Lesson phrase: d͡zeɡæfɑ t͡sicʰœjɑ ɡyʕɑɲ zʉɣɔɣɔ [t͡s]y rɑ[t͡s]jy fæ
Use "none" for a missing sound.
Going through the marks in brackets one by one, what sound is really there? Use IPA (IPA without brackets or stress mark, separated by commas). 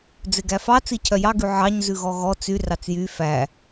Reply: t͡s, t͡s